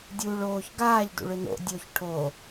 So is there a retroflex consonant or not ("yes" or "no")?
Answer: yes